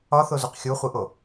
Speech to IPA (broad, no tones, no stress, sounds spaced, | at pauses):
ɒ θ o z u q xʲ u χʷ i ʔ o